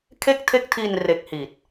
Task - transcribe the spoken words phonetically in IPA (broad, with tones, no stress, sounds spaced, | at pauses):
kʰ e˥˩ k̚ tʰ e˥˩ k̚ tʰ i˧ n r e˦˥ k̚ h iː˨˩ t̚